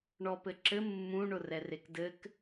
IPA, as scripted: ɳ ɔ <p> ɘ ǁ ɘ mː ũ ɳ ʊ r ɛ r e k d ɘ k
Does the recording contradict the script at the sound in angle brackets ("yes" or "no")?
no